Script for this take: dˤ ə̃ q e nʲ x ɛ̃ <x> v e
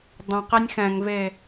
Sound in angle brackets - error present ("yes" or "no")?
yes